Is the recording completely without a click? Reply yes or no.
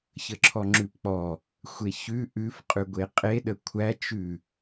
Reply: no